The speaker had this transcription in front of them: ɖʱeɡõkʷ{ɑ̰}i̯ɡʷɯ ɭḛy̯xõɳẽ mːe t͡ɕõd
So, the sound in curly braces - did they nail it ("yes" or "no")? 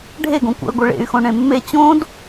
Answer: yes